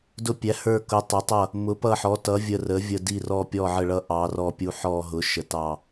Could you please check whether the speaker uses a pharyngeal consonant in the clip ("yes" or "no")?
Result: yes